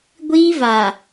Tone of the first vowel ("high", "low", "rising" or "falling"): high